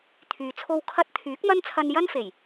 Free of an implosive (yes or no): yes